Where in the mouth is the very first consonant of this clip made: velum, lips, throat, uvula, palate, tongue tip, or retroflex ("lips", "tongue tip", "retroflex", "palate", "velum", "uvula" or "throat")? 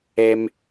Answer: lips